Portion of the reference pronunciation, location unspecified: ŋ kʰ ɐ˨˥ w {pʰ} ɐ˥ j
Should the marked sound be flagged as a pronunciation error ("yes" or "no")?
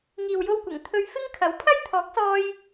no